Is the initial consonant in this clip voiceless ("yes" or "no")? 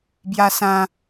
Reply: no